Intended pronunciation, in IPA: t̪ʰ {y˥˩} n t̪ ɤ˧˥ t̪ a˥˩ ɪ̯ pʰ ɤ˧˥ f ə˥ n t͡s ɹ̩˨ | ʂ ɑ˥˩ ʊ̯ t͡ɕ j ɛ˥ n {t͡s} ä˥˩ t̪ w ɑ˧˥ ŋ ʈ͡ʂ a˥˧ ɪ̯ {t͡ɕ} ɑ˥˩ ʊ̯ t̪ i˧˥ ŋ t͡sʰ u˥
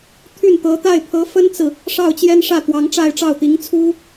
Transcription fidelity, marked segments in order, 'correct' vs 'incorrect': correct, incorrect, incorrect

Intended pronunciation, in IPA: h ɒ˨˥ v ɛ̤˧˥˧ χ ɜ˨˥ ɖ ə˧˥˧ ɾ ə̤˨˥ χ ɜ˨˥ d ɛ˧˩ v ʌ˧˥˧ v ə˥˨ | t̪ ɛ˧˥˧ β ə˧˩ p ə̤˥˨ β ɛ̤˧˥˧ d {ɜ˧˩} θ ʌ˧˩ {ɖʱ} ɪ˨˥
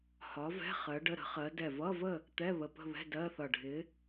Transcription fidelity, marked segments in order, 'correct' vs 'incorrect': incorrect, correct

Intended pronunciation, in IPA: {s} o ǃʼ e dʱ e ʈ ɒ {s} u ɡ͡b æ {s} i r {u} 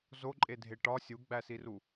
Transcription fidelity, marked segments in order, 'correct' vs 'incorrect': incorrect, incorrect, correct, correct

